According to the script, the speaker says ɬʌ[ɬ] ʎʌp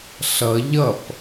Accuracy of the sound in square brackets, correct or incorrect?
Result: incorrect